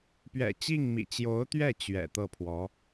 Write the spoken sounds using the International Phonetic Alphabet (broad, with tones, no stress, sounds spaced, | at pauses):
p ɥ ɛ̰˨˩ t͡ɕ i˥˩ ŋ m ḭ˨˩ t͡ɕ j o˧˥ ʊ̯ t̪ ɥ ɛ˥˩ t͡ɕ ɥ ɛ̰˨˩ t̪ ɤ˥˩ pʰ w ɔ˧˥